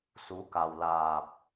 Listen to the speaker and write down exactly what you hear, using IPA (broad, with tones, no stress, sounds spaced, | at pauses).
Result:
s u˨˦ k a˨˩ w l aː˨˩ p̚